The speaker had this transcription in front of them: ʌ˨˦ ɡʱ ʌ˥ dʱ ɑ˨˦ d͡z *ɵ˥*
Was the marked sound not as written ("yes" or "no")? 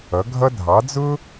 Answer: yes